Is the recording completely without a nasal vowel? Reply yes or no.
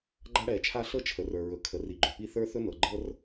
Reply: yes